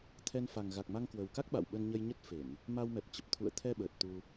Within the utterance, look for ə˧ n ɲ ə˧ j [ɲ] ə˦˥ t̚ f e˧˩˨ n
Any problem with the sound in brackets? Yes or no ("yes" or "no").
no